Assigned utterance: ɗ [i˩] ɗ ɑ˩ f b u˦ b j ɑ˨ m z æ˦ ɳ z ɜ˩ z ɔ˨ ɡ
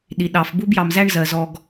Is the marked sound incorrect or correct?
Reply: correct